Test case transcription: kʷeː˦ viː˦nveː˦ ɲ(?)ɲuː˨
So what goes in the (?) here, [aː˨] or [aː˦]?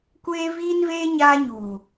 aː˦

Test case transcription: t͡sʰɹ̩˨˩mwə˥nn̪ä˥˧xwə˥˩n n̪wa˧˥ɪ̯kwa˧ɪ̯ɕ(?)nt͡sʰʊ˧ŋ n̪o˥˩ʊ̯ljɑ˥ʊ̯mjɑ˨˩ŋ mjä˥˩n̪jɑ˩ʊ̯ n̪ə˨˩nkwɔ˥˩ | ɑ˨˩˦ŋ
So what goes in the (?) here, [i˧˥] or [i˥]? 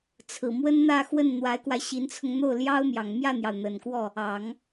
i˧˥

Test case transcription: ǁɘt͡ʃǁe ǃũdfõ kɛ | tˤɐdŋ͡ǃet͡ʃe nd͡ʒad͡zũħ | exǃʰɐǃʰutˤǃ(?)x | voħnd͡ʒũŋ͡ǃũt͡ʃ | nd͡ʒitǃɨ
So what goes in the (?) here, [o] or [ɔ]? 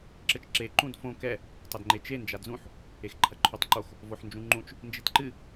o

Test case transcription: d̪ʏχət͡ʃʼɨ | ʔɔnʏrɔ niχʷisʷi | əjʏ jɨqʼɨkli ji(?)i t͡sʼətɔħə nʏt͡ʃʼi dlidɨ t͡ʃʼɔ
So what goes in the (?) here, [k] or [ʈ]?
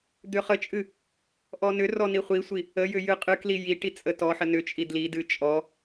ʈ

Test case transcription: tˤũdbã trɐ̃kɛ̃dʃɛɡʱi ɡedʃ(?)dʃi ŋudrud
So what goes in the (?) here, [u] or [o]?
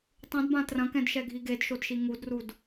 o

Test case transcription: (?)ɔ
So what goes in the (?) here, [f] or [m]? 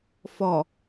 f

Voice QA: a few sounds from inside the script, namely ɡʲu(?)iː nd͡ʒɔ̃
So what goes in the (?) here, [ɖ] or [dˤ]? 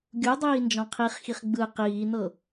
dˤ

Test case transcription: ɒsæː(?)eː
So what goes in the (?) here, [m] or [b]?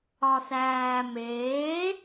m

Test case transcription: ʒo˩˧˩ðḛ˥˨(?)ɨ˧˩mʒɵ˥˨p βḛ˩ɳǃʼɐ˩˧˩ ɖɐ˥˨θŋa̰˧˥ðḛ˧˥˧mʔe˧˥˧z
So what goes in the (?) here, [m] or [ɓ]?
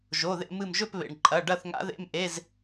m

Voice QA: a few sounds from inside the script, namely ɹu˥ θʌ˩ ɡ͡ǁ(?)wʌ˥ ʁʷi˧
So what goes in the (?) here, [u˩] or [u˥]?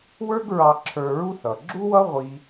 u˥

